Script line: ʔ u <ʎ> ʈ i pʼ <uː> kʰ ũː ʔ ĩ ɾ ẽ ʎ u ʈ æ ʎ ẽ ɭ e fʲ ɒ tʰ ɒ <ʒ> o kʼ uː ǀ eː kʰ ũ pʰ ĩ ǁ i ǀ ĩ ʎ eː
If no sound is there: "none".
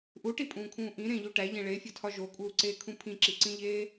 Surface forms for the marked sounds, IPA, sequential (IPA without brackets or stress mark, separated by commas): none, ũː, ʒ